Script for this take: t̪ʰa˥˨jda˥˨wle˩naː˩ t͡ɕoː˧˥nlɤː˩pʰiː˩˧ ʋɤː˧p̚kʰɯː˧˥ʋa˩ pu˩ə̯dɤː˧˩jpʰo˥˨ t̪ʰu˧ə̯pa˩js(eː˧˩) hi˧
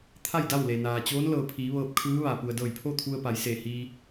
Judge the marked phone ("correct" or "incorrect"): correct